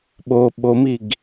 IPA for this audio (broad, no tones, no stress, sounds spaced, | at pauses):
ɓ o ɓ o m i ɡ